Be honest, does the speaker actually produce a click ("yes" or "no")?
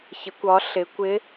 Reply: no